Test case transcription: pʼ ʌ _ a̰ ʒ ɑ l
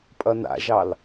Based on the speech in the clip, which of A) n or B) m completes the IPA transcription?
A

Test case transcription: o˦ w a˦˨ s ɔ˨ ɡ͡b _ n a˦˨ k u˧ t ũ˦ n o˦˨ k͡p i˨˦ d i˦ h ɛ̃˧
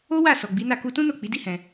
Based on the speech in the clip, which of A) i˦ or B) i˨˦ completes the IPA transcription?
B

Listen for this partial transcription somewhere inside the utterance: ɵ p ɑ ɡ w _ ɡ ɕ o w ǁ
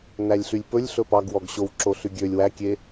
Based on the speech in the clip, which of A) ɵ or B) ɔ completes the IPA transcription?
B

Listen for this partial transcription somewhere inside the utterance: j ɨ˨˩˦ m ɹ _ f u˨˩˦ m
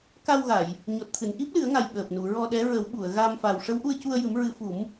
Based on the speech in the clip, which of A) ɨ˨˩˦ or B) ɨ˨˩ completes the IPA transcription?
A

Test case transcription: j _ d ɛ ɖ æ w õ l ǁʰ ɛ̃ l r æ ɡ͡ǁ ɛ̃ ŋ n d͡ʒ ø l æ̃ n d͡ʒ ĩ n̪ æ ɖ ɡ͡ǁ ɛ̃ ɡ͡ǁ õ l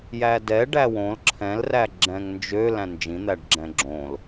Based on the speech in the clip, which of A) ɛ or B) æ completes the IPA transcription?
B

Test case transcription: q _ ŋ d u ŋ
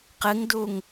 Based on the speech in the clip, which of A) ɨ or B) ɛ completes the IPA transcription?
A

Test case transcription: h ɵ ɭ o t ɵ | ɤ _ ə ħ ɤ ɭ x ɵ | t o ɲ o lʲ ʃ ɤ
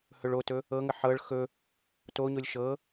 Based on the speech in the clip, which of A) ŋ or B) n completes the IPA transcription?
A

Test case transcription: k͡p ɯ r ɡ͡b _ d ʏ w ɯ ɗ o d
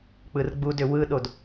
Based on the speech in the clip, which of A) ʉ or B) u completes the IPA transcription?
B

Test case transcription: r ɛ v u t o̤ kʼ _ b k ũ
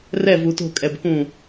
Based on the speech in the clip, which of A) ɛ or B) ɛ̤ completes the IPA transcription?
A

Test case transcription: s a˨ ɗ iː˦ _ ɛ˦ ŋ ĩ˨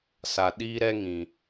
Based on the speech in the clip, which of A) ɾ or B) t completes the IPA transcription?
A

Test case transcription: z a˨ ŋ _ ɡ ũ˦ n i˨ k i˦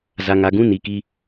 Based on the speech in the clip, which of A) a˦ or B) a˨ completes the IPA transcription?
B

